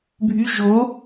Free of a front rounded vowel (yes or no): no